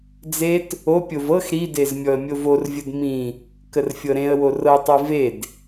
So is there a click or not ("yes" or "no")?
no